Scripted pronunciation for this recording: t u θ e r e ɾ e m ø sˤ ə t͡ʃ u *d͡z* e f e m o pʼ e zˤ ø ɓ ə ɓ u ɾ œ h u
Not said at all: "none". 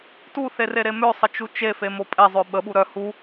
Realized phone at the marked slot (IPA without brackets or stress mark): t͡ʃ